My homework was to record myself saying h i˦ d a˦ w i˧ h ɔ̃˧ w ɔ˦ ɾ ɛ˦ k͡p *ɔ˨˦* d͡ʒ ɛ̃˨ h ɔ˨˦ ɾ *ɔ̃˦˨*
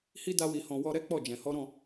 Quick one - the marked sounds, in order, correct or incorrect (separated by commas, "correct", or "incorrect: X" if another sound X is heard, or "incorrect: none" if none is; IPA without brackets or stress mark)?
incorrect: ɔ˦˨, correct